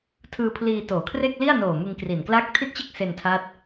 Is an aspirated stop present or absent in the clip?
present